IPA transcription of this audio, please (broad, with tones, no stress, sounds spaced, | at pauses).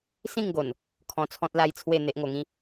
s ĩ˥˧ ŋ ɡ o˨˩ n | kʰ ɔ̃˧ t͡sʰ ɔ̃˦ t̚ l a˦ j t͡sʰ w e˥˧ n̪ e˦ ʔ ŋ o˧ ŋ ĩ˥˧